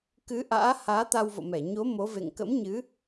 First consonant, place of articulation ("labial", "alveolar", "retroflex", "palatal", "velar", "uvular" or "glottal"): velar